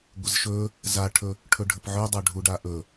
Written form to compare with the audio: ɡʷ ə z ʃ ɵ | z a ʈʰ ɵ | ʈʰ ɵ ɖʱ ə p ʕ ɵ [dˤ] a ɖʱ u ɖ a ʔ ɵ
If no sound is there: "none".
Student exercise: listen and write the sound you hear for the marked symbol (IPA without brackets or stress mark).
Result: dˤ